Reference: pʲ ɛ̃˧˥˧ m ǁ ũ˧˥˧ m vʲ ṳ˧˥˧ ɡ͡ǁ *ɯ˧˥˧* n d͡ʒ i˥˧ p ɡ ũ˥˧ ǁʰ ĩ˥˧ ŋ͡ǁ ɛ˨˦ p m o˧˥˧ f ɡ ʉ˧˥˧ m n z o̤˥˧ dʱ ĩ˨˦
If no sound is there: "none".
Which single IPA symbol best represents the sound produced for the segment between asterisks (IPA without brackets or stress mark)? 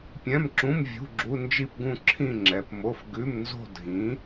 u˧˥˧